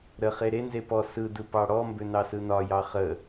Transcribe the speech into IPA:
ɾəχe ɾenze pɔ sɯdɯ pɑɽɔmbʏ nɑsɯnɒjɑ χə

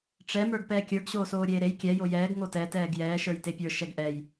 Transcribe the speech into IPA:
ʈ͡ʂɛ mə˞ɡpɛːkʲə˞ɡ ɕoːsoːɾʲeːɾej kʲɛ jojɛːɡ ŋotɛ tɛːɡjɛː ʃə˞jtepʲə˞ ʃɛɡʔɛj

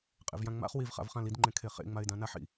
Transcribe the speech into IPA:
qʼḛvjãŋ͡ma̰χ wivχa̰v χãlidŋ͡ǃẽ kʰeχḛ ŋ͡maɪ̯dãnaħḭ

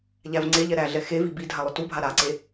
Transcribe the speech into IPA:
ʎævŋ͡ǀeʎɛ ɾæɮɛ xevi bi dʱalˠʏtubʱa ɾaǀe

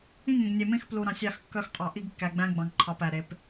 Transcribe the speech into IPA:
ĩ˦˨ŋẽ˨ɡnʲe˨mẽ˦x plu˨ɾɑ̃˨sʲ ɑ˦˨xkːœ˦xqʼɑ˨ ʔi˦ɡkːæ˨ ɡ͡bæ̃˦ɡ͡bɑ̃˨ŋǃʰɑ˨p æ˨ɾe˨˦p

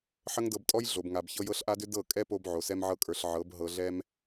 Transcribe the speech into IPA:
ħə˦ŋdɤ˧btʼɔ˦j ɮo˨bŋa˨bçɤ˧j ɤ˧ɬʔa˧dʏ˧ dɤ˦˨ kʼɛ˦po˧b ʕo˨sɛ˧mʕɤ˧kʼə˞˨ɬ ʕɤ˨˦b ɦɤ˨ɮɛ˧m

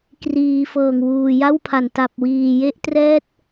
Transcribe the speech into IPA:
kriː˩˦ fɤː˨˩ŋwuː˨˩ja˥˩wpʰa˨˩n ta˨˩p̚wiː˨˩je˦˥ʔtrɛː˦˥t̚

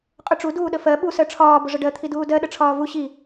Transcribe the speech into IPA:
qʼʊʈ͡ʂu duːɗəfɜ ɓu sɜʈ͡ʂʰɒː bʊʐəɖɜ t̪ʰiduːdɜ ɗəʈ͡ʂʰɒːvu ɕi

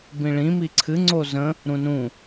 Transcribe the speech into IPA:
bĩɭĩ miǀʰɨ ŋ͡ǀozə̃ | ɾũnũ

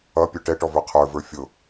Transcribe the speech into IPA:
ʌ pʲə˞ʈɛʈɔvə˞ qʰə˞və˞ fʲʊ

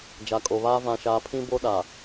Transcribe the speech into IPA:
d͡ʒa˨kʼo˨βaː˦ vã˨ʃaː˨ pʰĩ˦bo˦ ɗa˨

